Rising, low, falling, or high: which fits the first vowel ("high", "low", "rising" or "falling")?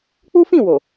high